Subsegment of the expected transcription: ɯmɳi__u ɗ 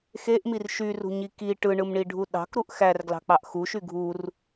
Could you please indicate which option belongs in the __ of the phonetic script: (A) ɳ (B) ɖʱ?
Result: B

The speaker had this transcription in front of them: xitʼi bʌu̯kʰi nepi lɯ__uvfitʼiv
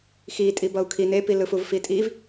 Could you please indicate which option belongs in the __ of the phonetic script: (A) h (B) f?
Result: B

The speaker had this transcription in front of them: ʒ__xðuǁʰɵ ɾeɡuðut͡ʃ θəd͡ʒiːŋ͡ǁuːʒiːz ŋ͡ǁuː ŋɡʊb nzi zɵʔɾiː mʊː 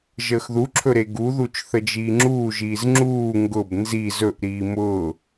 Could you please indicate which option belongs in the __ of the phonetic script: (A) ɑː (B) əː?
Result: B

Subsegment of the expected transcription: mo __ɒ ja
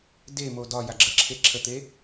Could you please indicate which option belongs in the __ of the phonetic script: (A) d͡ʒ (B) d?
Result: B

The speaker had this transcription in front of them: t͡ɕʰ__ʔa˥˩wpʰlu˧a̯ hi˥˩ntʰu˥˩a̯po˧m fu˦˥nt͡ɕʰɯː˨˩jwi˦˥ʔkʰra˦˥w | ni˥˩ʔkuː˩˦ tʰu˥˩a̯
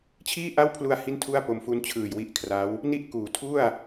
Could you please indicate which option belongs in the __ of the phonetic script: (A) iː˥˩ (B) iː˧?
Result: A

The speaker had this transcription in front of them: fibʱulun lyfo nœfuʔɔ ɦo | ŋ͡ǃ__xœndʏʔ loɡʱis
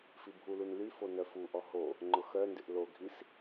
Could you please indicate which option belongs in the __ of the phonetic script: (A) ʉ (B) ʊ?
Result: B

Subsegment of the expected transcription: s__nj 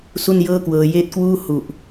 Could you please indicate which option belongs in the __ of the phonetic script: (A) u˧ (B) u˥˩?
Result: B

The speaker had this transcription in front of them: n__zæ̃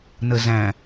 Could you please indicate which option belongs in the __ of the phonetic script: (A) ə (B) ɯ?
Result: A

